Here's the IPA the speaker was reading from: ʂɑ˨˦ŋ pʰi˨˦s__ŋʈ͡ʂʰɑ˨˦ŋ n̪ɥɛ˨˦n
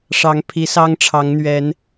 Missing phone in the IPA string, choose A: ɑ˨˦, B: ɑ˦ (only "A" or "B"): B